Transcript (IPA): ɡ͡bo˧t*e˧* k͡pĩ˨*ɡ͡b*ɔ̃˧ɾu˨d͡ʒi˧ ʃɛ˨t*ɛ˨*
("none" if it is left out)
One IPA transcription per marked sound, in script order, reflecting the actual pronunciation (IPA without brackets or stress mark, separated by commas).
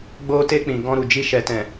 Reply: e˧, ɡ, ɛ̃˨